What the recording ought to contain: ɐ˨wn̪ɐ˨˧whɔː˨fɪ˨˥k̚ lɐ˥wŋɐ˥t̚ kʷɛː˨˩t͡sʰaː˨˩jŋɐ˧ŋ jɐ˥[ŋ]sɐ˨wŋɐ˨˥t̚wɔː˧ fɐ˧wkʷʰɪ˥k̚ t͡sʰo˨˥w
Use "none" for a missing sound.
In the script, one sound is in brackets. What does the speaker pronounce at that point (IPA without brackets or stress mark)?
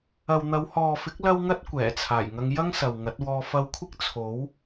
ŋ